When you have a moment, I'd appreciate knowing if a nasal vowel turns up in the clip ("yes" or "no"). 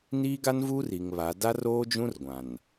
yes